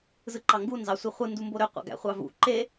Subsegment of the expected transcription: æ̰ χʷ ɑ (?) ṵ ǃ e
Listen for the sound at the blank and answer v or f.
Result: v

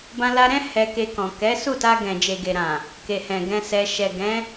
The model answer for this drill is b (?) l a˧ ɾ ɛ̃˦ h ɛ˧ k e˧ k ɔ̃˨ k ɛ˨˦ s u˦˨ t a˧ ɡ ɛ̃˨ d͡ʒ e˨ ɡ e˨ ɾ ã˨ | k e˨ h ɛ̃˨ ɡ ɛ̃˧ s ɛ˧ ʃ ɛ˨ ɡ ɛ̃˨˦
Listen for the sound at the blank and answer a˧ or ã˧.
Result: ã˧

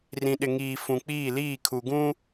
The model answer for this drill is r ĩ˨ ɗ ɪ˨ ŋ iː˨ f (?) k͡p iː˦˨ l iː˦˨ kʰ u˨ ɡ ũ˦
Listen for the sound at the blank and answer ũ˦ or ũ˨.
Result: ũ˨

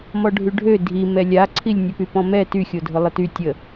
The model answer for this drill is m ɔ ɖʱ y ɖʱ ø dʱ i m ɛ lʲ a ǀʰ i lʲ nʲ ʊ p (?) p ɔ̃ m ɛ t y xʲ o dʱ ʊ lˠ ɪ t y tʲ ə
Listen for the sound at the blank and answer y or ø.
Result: y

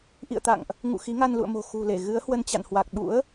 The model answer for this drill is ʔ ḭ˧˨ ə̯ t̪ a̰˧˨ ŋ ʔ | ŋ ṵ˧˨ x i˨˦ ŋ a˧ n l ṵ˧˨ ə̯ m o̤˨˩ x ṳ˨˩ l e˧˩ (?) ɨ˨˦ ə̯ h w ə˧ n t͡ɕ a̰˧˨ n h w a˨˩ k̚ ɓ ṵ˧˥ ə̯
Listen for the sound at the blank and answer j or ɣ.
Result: ɣ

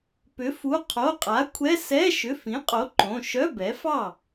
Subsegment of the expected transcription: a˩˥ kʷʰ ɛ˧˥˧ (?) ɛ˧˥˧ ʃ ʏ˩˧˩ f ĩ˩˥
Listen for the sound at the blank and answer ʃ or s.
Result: s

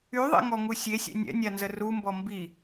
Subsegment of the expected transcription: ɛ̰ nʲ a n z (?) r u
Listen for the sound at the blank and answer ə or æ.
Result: ə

